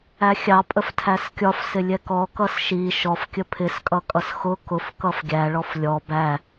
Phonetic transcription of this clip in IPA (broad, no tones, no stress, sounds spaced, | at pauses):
æ xʲ ɑ pʼ ə f tʰ æ s kʲ ɒ f s ɪ lʲ ɛ k ɔ k ʌ s ʃ i ʃ ɔ f kʲ ə pʰ ɪ s kʼ ʌ kʼ ʌ s x ʊ k ʊ f k ʌ f ɡʲ æ ɭ ɔ f lʲ ɔ b æ